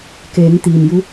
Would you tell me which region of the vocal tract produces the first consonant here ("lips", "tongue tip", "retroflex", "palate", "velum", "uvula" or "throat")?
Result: velum